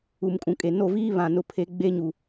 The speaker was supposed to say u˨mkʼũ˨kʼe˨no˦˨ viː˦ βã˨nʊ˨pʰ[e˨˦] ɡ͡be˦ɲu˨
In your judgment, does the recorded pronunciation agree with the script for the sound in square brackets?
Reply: yes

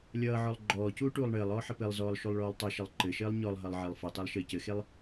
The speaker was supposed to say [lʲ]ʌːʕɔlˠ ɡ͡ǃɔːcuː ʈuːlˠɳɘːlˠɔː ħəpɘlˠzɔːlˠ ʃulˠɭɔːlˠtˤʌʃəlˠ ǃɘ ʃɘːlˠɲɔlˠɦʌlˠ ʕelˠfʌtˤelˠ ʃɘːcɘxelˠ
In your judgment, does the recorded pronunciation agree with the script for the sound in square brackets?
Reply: yes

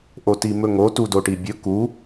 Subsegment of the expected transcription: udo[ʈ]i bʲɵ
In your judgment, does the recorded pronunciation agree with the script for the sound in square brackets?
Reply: yes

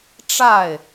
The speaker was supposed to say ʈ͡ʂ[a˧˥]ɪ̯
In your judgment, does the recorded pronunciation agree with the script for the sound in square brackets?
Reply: no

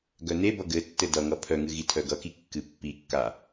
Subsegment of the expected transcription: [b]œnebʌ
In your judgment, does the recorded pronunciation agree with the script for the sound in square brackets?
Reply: no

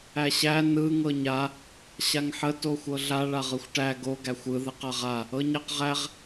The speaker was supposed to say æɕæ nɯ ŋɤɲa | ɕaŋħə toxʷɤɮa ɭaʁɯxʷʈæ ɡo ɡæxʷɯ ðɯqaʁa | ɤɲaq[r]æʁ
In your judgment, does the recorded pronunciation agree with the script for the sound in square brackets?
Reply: no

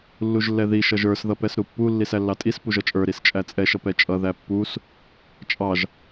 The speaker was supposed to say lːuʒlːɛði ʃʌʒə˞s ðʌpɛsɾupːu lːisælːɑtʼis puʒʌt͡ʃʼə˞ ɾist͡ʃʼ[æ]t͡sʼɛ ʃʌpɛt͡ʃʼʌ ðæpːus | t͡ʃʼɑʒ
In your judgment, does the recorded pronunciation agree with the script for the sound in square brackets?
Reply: yes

